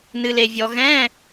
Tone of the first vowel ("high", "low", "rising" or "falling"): low